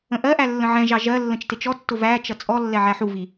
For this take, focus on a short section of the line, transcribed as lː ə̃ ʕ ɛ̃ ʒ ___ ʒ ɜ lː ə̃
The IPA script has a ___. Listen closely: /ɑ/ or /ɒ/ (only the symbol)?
ɑ